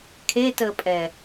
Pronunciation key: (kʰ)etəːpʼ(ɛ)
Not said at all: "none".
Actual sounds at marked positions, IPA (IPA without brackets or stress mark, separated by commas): kʰ, ɛ